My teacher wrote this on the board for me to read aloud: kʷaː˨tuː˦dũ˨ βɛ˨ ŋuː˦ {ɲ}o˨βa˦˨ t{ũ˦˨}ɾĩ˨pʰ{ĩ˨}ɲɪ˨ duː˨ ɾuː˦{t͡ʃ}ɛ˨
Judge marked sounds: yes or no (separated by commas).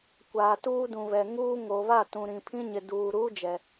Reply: no, no, no, no